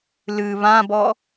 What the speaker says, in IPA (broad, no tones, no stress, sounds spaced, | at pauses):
l ɨ β ã b ɔ